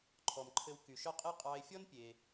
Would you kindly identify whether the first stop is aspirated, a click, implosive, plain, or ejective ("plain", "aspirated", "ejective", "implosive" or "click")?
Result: click